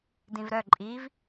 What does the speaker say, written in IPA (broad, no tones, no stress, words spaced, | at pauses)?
dĩvɾœ ǃʼiv